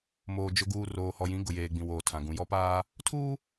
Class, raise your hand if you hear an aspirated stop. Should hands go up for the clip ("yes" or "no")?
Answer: yes